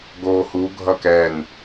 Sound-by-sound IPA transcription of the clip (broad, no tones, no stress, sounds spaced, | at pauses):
ɡ oː h u ɡʱ ʌ k ɛ n